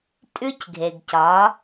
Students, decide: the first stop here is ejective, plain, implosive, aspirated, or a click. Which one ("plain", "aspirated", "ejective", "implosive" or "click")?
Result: ejective